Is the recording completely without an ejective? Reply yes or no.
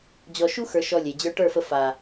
yes